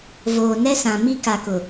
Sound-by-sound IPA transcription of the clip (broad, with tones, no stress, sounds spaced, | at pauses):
v oː˨ n ɛ˦ s ã˨ m i˦ k a˨ k ʊ˨